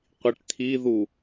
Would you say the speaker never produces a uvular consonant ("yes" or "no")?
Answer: no